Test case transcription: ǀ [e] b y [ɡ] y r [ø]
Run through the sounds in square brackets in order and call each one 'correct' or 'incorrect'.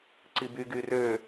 incorrect: i, correct, correct

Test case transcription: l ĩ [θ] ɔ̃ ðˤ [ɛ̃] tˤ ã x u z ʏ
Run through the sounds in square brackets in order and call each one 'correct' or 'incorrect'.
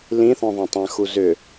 correct, correct

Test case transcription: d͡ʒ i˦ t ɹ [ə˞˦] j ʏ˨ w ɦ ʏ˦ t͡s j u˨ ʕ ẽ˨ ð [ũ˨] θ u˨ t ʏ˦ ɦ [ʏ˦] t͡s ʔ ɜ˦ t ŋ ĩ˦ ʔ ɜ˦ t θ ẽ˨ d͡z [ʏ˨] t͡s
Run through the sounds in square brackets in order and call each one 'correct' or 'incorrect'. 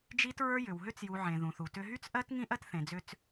correct, correct, incorrect: y˦, incorrect: ʏ˦

